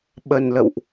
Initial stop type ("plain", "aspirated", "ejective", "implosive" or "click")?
implosive